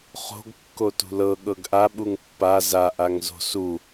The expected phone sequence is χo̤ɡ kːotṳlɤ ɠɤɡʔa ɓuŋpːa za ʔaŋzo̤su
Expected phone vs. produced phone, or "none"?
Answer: none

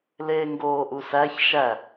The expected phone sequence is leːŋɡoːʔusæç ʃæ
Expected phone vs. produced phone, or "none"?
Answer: none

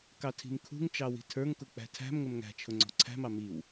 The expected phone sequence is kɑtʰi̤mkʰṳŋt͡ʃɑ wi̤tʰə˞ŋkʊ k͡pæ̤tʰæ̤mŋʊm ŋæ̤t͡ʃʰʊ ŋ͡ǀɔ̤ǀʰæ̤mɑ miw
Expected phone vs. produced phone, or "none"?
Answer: none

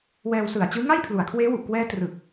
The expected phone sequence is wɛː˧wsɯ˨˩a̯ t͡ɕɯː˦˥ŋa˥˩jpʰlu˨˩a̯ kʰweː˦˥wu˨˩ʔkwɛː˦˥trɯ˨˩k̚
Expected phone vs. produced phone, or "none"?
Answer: none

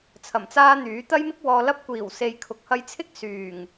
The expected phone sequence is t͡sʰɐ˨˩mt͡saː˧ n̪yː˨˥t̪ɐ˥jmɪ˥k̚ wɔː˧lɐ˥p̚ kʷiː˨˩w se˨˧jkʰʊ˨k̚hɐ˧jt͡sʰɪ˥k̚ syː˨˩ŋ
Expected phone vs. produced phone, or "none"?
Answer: none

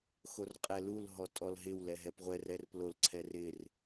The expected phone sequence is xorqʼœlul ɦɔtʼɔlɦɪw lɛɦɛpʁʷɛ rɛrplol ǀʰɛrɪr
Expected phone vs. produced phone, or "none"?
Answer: œ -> ɛ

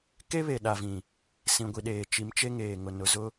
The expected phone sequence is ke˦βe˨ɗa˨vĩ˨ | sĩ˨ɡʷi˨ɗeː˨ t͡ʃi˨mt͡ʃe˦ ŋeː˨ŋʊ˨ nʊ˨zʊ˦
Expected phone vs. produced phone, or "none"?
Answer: none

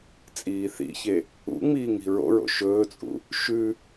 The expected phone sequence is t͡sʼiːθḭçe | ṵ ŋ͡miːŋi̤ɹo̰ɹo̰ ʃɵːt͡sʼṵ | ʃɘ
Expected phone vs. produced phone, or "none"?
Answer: ɘ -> ʉ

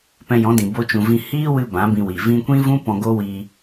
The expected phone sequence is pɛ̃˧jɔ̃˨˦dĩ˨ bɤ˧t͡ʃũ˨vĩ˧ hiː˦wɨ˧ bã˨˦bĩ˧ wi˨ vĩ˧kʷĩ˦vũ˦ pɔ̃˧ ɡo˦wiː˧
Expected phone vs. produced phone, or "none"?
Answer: ɤ˧ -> o˧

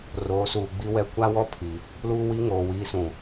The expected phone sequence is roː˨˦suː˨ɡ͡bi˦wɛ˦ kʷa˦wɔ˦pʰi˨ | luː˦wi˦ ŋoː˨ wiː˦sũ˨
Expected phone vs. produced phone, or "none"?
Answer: none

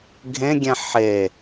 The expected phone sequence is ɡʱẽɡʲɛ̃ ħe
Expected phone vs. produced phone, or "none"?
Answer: none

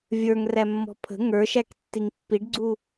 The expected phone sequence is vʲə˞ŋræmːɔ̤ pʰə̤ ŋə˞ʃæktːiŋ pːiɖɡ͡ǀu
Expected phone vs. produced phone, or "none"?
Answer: none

